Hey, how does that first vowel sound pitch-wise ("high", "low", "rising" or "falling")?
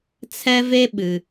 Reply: high